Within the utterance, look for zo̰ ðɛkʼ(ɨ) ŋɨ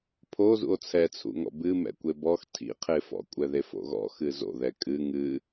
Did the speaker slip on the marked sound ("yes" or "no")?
no